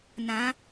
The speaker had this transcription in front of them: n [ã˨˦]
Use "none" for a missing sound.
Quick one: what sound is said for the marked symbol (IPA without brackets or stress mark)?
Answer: ã˨˦